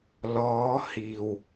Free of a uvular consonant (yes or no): yes